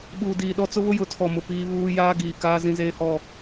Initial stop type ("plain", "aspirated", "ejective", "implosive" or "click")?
implosive